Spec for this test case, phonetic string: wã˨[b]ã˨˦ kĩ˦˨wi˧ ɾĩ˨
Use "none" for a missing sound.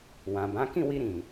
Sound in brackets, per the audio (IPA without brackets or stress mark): b